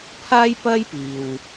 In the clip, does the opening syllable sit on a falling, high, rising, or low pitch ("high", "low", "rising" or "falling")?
high